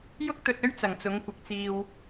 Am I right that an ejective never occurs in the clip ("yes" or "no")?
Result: yes